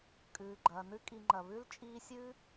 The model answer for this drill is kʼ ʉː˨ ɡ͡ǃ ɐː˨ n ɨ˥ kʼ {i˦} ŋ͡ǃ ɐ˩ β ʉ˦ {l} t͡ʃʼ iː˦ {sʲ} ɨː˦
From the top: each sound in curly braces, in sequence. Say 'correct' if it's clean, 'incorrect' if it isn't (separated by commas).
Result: incorrect, correct, correct